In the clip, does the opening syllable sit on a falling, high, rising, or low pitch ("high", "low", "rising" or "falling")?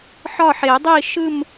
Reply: falling